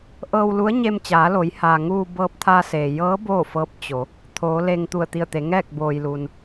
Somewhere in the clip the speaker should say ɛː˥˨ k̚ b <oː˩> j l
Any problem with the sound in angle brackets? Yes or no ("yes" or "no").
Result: no